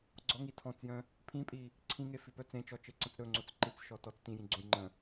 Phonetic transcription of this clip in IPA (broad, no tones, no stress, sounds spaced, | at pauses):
ɡ͡ǀ ɔ ŋ i tʰ ɔ̃ t͡s j œ̃ | pʰ ĩ pʼ i | ǀʰ ĩ ŋ e f i p œ t͡s ẽ t͡ʃ ɔ t͡ʃ e ǀ ə̃ t͡s ɾ ɵ ŋ͡ǀ o t͡s ǃ i t͡s ʃ ɔ t ɔ t͡s t ĩ j ĩ ɡ͡ǀ õ j ŋ͡ǃ ə̃